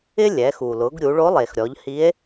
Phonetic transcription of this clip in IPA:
ɪ˥ lʲɛ˩˧xu˩lʊ˩˧ɡ ɾʲu˩˧ɭo˧˥lˠe˩xɾʲɔ˩˧ʎ hi˧˥e̯

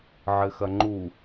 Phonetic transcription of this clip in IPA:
ʕɘxɐŋ͡ǃu

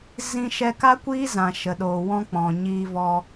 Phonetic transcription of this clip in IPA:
zĩ˧ʃɛ˧ka˦kʷiː˦ zã˨ʃə˨ɗoː˨ wɔ̃˦k͡pɔ̃˨ɲiː˧vɔ˧

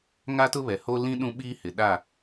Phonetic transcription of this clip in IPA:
ŋa˦tʊ˦βɛ˨ ho˦lĩ˦ ɗũ˦ɓiː˦hɪ˨ ɗa˦˨

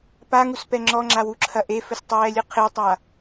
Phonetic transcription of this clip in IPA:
paŋuspɛ ŋ͡ǁɔŋ͡ǁawuǁʰɐ ʔefɘstˤɛːlʲɨ qʰetˤa

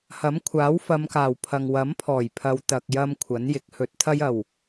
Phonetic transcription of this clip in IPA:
hɐ˨˥mkʷʰaː˨˥w fɐ˨˧mkaː˨˩w pʰɐ˨ŋwɐ˨˥mpʰɔː˨˩jpʰɐ˨˧w t̪ɐ˨k̚jɐ˧m kʷʰɐ˨˥njɪ˨˥k̚ hɵ˨˥t̚t̪ʰɐ˥j ɐ˨˩w

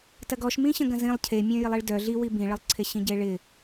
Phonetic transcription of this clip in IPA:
tɐɡɔʃmĩɕə̃ ɡɐ̃zĩlˠ cʰemʲœ̃ jɪlˠiɭdœ ɮiwi bĩɭəlˠǀʰe ɕĩɟeɭɪ

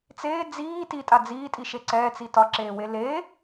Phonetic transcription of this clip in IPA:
t͡seː d͡ziː titʼa d͡ziːtʼiʃe ǀɛːt͡si tɒǁeːwe le

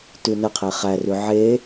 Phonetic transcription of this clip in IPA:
tʉnəqʰe χærʉ ʕe

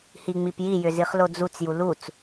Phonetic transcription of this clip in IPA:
hiŋ͡mipjijʏ ziχlod͡zut͡s julut͡s

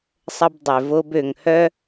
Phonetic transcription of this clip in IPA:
sˤə˥bdˤø˩vo˥b ø˩ŋhœ˥

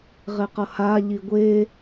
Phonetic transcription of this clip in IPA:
ʁeqʌha ʎiɡʷe

